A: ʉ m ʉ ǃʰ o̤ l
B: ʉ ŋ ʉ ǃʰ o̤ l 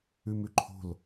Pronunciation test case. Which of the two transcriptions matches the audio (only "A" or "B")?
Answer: A